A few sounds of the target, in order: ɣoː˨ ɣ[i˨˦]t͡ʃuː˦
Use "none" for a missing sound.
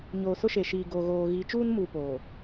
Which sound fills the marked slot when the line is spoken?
i˨˦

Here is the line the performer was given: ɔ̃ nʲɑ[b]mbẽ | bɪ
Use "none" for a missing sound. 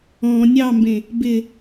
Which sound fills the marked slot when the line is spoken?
none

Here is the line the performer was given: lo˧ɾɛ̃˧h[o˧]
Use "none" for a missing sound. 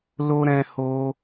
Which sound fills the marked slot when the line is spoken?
o˧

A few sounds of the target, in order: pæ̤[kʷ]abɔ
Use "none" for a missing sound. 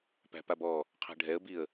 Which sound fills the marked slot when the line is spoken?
p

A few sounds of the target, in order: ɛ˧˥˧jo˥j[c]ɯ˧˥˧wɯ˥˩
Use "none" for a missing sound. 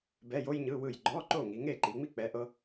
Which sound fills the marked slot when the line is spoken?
ɲ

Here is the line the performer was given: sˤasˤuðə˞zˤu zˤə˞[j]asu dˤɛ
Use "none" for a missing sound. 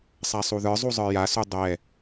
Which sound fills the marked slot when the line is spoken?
j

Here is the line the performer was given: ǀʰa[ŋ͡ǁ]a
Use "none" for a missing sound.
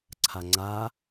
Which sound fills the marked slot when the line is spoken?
ŋ͡ǀ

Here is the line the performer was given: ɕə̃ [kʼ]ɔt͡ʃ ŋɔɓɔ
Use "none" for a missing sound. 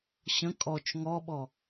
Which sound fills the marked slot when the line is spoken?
kʼ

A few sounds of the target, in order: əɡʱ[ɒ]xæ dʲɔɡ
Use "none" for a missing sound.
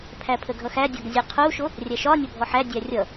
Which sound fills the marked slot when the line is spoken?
ʌ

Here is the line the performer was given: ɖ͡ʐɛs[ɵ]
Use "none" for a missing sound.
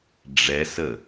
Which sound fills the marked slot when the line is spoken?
ə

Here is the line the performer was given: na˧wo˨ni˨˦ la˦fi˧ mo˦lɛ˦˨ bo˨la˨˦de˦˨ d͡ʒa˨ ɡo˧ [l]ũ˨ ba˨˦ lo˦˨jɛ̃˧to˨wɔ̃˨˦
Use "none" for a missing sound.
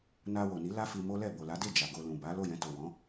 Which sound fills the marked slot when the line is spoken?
l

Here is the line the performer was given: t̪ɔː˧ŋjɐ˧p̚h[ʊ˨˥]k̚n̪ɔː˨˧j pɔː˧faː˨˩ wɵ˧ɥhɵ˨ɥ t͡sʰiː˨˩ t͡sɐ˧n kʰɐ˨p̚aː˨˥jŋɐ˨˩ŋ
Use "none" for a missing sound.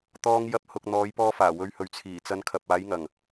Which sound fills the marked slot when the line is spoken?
ʊ˨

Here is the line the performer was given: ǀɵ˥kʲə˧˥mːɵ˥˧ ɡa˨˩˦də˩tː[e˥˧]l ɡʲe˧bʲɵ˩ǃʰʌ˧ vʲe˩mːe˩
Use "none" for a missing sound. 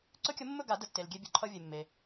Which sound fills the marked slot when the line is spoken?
e˩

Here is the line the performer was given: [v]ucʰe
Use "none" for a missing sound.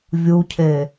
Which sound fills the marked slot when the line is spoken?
vʲ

